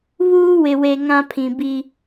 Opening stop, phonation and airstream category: aspirated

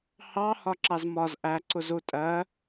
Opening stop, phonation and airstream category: click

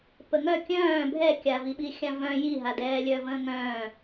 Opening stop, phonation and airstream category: plain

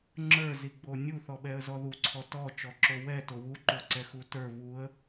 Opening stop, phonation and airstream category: click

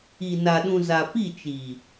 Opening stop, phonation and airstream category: implosive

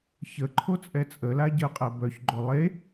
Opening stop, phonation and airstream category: click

